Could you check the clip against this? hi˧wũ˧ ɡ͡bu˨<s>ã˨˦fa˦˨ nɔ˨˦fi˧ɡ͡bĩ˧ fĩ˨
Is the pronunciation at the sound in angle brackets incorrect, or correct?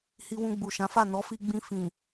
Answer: incorrect